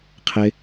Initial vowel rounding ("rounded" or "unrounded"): unrounded